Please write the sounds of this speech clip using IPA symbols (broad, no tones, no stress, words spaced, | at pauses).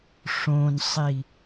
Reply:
ʂõnsˤi